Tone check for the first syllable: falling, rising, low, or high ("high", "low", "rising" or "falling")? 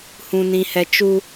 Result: low